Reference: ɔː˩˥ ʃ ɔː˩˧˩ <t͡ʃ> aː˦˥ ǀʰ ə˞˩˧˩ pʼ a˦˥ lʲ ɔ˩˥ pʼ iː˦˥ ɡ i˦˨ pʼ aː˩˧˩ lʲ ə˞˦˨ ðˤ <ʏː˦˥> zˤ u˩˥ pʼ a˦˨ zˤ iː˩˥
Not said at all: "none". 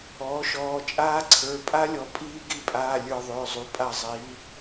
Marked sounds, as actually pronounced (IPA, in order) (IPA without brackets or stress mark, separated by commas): t͡ʃʼ, ʏː˩˧˩